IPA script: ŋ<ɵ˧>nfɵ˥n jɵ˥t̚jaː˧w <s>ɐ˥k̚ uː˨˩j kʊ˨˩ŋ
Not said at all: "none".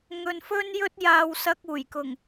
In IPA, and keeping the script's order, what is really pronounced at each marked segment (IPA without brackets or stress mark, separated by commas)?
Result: ɵ˧, s